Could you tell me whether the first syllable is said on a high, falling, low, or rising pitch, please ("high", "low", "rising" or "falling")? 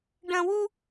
high